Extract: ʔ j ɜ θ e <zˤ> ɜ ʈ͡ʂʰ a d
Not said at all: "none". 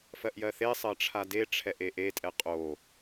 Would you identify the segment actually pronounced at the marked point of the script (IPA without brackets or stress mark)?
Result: sˤ